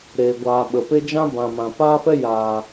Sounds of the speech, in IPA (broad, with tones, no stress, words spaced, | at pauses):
ɾeː˨ɡʷaː˨ɓə˨ pe˦ d͡ʒã˦bã˨mã˨ paː˦fɛ˦jaː˨